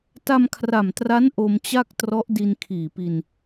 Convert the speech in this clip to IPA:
t a˧ m kʰ r a˨˩ m t r a˦˥ n ʔ o˧ m t͡ɕ a˥˩ k̚ t r ɔ˦˥ ʔ d i˧ n kʰ iː˨˩ p i˧ n

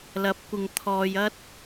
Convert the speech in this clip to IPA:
l ɐ˨˥ p̚ kʷ ɪ˨ ŋ t̪ʰ ɔː˧ j ɐ˥ t̚

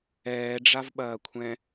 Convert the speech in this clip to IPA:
ɛː ɖ͡ʐ a v ɓ ɐː kʷʰ ɛ̃

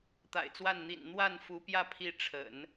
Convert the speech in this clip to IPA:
t̪ a̰˨˩ ɪ̯ t͡s w a˥˩ n n̪ ḭ˨˩ n n̪ w a˥˩ n f u˧˥ p j ä˥˧ pʰ i˥˩ ʈ͡ʂʰ ə̰˨˩˦ n

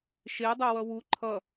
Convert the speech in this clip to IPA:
ʃ e dˤ o w ʌ w u ǃʰ ʌ

